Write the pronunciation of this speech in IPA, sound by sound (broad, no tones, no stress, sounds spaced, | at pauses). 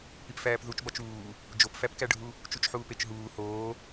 p i p f æː p ð u t͡ʃ b ɒ t͡ʃ uː | d͡ʒ o p f æ p k æ ɖʱ u | t͡ʃ u t͡ʃ ħ uː p e t͡ʃ ɦ uː h oː